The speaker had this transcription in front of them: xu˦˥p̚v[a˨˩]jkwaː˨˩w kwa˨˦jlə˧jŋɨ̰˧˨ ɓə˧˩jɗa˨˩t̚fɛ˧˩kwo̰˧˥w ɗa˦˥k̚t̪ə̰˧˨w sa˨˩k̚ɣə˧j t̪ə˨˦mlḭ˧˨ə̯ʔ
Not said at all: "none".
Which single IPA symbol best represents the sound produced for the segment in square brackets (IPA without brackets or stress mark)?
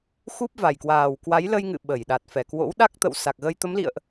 a˨˩